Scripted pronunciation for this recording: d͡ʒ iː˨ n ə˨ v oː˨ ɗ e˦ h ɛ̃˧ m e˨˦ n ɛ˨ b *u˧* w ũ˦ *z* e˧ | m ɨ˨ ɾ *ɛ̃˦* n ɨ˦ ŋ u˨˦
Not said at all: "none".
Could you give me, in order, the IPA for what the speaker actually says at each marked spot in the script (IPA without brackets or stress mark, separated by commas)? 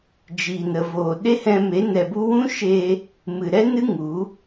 u˦, ʃ, ɛ˦